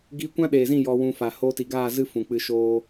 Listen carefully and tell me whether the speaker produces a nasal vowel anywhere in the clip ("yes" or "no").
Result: yes